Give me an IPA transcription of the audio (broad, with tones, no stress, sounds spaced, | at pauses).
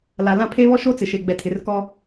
l a˨ l ã˦˨ pʰ e˦ β ɔ˦ ʃ o˦ t͡s ɪ˨ ʃ e˨ ɡ͡b ɛ˨ tʰ ɪ˨ r k ɔ˦